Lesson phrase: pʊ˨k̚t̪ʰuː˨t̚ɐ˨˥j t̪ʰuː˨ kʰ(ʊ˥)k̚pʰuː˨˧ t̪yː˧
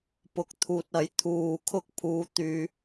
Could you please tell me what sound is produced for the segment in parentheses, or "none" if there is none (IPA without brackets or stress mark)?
ʊ˥